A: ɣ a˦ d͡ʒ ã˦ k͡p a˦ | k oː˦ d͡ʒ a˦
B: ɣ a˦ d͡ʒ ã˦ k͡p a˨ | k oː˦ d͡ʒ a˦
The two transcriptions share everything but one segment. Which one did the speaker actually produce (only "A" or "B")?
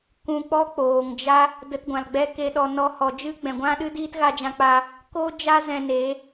A